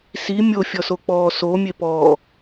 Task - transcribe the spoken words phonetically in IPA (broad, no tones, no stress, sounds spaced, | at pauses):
s i mʲ o fʲ ɔ s o k͡p ɔː s o mʲ e p ɔː